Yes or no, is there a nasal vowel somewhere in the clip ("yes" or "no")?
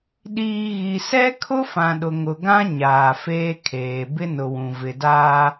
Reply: yes